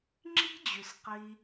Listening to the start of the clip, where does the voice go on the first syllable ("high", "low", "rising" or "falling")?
high